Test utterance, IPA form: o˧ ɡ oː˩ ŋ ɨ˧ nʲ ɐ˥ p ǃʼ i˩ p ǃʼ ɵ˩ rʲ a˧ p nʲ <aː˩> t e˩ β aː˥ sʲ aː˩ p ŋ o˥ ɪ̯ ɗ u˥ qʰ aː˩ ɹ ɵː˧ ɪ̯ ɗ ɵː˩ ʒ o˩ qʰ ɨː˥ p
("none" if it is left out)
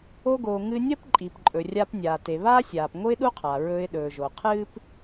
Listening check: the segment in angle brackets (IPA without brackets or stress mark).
aː˩